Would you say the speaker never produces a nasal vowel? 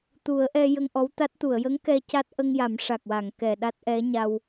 yes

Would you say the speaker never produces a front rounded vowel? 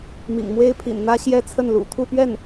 yes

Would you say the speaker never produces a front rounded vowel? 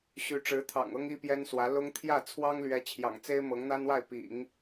no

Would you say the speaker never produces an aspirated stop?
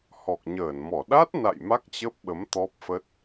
yes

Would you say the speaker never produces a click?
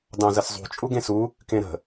yes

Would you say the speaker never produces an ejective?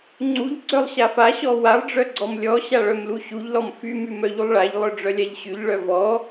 yes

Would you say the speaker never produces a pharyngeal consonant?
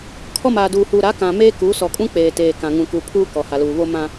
yes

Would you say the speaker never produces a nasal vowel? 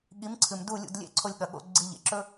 yes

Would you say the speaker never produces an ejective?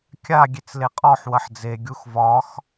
no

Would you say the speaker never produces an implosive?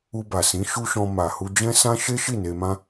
yes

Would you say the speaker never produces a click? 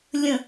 yes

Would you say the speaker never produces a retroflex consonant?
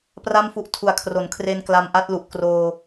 yes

